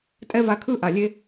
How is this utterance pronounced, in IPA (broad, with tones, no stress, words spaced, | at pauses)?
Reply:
tʼɛ˦va˧ kʰɯ˦ ʔa˨lʲe˦